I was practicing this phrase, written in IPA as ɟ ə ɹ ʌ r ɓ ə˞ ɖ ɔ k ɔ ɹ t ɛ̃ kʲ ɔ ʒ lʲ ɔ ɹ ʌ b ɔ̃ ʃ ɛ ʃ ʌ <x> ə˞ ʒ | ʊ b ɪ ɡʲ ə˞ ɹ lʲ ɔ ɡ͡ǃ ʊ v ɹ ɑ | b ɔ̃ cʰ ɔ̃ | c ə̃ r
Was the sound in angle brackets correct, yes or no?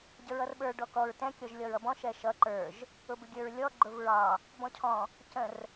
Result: no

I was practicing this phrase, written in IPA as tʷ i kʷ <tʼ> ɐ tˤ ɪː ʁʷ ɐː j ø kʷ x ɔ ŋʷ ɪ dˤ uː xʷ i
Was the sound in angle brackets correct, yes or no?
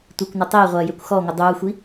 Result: no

